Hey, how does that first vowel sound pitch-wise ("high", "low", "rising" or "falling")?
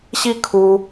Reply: falling